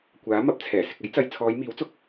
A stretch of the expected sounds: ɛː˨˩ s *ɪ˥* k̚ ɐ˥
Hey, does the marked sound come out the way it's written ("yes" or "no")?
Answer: no